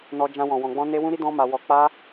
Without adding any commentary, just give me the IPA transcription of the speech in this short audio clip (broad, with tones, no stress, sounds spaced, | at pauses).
n ɔ˦ d͡ʒ ã˦ w ɔ̃˧ w ɔ̃˧ ɡ͡b ɔ̃˦ n e˦ w ũ˦ ɾ i˦ d ɔ̃˦ m a˧ w ɔ˧ k͡p a˦